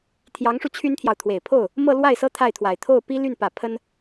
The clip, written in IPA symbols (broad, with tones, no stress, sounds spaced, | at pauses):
t̪ʰ j ɑ˧˥ ŋ ʂ u˧ t͡ɕʰ y˥ n t̪ʰ j ɑ˨ ʊ̯ t̪ʰ w e˨˩ ɪ̯ pʰ o˥˩ ʊ̯ | m ɤ˥˧ l w a˥˩ ɪ̯ s ɤ˥ t̪ʰ a˥˩ ɪ̯ t̪ʰ w a˨˩ ɪ̯ t̪ʰ o˥˩ ʊ̯ p i˥ l y˥˩ n p ä˨˩ pʰ ə˥ n